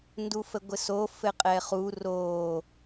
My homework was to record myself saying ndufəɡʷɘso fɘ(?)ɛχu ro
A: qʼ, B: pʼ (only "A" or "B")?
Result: A